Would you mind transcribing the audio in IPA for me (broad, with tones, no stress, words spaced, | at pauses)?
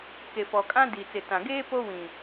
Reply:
ke˨fɔ˨ kʼã˦di˨t͡sɪ˨tã˨ ɡeː˦ po˦wĩ˨